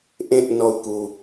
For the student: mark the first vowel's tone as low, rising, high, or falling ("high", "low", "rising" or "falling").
high